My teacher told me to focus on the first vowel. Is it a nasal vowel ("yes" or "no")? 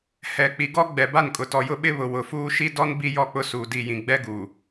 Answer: no